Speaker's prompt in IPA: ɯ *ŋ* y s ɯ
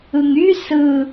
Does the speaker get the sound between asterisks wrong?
no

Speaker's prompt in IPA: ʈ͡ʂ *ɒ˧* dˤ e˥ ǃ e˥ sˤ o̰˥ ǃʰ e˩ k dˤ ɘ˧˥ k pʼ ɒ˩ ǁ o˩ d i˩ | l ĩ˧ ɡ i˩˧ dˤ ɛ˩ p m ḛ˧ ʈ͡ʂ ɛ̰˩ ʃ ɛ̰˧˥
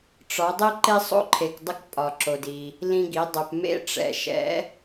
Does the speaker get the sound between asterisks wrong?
yes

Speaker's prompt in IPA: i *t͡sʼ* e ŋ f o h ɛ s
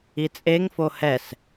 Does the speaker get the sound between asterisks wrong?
no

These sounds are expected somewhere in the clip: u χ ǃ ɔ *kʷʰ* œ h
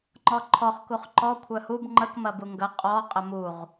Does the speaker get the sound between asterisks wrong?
no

